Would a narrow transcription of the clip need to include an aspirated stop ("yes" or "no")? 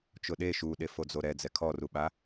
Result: yes